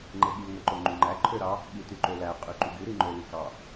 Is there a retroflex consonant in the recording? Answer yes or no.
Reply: no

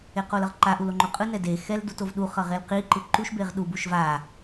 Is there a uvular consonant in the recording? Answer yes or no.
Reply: yes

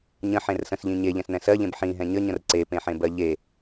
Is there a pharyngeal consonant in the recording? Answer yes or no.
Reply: yes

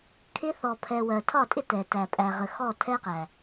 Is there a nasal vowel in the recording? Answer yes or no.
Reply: no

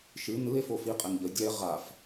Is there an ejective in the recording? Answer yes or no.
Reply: yes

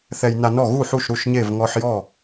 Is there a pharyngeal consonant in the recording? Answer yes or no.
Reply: yes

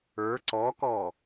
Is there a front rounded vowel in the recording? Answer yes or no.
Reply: no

